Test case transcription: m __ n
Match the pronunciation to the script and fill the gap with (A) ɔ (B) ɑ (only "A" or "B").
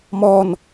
A